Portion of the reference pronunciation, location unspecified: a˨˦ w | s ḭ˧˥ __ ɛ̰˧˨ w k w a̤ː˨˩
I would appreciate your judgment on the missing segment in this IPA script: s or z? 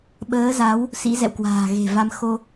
z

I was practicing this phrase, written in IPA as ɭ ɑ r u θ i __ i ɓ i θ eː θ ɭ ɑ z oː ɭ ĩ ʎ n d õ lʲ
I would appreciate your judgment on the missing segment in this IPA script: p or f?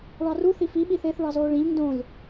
f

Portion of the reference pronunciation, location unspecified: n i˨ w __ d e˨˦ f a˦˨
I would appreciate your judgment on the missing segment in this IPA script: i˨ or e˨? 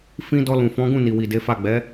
i˨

